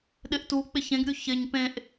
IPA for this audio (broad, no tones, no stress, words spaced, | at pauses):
ɗɪʔtu k͡pɪçẽɡɾʲu çɪɲ pẽʔ